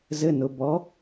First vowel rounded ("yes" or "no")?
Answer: no